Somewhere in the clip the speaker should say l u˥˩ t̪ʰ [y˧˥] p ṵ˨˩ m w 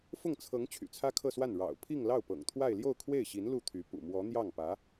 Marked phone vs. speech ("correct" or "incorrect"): correct